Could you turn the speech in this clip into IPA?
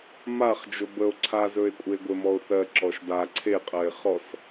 m a χ d͡ʒ o b ə o̯ ǀʰ a z ɵ e̯ kʷʼ e ɡʷ e m ɔ o̯ θ ɜ ǁ ɔ ʃ d a ǀʰ e qʼ ɜ e̯ χ ɔ s

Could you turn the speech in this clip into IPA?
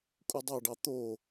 kʼ u dˤ ɑ ɖ ɑ t̪ o

